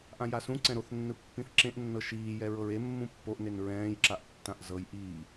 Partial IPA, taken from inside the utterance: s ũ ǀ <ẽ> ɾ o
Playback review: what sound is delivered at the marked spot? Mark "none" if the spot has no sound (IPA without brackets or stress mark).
ɛ̃